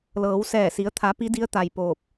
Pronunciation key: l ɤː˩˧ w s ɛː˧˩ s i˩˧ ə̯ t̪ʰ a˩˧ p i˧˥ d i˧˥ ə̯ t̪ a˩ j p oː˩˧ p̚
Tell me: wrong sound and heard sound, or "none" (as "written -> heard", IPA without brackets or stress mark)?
oː˩˧ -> oː˧˩